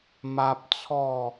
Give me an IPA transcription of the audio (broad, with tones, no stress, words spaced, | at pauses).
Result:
ma˦p̚ t͡sʰɔ˥˧